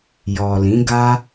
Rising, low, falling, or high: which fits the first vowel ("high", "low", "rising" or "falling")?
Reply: low